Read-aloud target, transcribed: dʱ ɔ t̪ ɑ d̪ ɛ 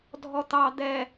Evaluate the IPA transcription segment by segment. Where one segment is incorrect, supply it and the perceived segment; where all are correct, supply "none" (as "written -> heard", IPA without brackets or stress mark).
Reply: none